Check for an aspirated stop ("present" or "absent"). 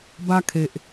present